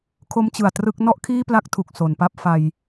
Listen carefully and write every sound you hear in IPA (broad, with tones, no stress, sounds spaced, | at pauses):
kʰ o˦˥ m t͡ɕ ɯ˨˩ a̯ t r ɯ˥˩ k̚ n ɔ˥˩ ʔ kʰ iː˥˩ p l a˦˥ k̚ tʰ u˨˩ k̚ s o˩˦ n p a˦˥ p̚ f a˧ j